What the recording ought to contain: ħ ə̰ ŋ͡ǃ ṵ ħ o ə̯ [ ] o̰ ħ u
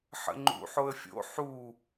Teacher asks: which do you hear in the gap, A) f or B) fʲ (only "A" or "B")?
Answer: B